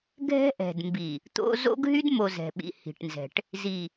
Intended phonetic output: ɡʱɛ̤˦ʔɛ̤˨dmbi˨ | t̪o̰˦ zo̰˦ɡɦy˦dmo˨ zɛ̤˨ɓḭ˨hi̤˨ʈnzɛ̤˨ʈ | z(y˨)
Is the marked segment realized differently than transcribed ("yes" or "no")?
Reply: yes